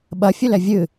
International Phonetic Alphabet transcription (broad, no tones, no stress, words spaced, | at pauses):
ɓɐfʲʊlɛ vʲɨ